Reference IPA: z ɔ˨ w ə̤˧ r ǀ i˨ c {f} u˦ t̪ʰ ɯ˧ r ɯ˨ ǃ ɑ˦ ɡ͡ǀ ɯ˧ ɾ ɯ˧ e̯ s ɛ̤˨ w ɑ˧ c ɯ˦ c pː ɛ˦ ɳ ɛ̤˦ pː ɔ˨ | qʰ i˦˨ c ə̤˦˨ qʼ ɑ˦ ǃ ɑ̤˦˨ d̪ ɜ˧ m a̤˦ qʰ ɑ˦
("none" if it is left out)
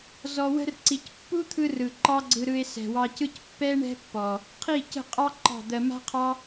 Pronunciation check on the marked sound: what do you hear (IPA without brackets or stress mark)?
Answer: pː